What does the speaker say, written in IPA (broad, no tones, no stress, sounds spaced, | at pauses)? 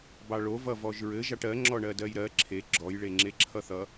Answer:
b ɑ ɭ o v ʌ v ɔ ʒ ɹ ɘ ʒ ɑ ʈ ɜ ŋ͡ǁ ɔ ɳ ɜ d ɜ j ɾ ɜ ǁʰ e ɡ͡ǁ ɔ j ɭ e ŋ͡ǁ e ǁʰ ʌ θ ʌ